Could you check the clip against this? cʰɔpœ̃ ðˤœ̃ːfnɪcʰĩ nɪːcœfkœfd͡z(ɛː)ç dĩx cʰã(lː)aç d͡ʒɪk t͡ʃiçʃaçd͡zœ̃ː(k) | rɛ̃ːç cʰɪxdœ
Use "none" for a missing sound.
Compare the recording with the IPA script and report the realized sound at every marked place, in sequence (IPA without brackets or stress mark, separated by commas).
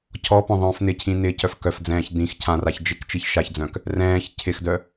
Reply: ɛ̃ː, r, k